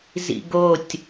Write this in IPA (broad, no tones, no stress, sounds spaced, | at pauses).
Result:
z ḭ ɡ o tʲ